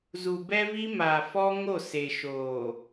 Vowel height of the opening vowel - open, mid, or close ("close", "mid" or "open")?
close